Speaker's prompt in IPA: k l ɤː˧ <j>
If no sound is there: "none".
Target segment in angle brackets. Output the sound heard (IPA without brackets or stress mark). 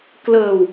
w